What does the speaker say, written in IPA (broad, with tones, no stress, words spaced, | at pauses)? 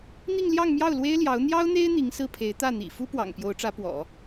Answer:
n̪i˥˧ŋ ljɑ˥˧ŋmjɑ˥˩ʊ̯lwe˥ɪ̯ ljɑ˧˥ʊ̯ n̪jɑ˥ʊ̯n̪e˥ɪ̯ n̪i˧˥ŋsɹ̩˥˩pʰe˧˥ɪ̯ t̪ä˥˩n̪ḭ˨˩ fu˥pwɑ̰˨˩ŋ pjo˧˥ʊ̯ʈ͡ʂä˧˥pwɔ̰˨˩˦